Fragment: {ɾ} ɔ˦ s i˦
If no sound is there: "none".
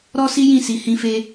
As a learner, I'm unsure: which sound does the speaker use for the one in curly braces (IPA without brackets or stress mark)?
ɾ